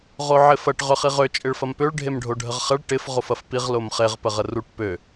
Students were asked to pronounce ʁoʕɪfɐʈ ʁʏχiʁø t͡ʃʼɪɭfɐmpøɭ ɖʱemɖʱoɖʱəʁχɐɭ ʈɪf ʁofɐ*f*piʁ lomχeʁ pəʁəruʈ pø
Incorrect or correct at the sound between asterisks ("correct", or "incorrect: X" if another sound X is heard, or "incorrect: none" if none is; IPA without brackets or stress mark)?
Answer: correct